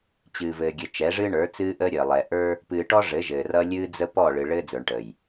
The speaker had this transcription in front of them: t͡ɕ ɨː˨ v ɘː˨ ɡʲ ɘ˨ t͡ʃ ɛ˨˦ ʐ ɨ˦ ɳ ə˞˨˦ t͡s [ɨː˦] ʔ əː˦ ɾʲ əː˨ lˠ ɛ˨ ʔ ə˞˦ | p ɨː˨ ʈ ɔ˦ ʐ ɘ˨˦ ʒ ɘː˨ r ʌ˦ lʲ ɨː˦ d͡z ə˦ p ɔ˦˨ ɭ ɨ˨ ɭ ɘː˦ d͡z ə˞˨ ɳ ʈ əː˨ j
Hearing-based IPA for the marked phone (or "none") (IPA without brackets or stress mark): ɨː˦